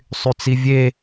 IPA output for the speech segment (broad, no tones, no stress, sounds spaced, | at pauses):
sˤ y t͡s i vʲ e